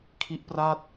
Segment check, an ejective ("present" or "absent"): absent